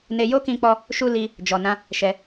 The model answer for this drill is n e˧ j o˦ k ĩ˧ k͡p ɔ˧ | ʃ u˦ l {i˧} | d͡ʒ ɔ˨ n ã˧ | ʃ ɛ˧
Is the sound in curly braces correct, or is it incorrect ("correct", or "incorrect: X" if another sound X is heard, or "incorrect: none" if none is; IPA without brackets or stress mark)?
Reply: correct